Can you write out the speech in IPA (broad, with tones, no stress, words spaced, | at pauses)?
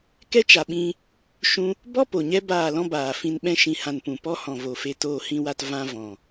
kɛ˦t͡ʃa˨ɓĩ˧ | ʃũ˧ | bɔ˦ po˨ɲɛ˦ baː˦˨lɔ̃˦baː˨fĩ˧n ɓɛ̃˧ʃĩ˨hã˨n pũ˨ pɔ˦hɔ̃˨vo˨fe˧ toː˨hĩ˨wa˨t vã˦ vɔ̃˨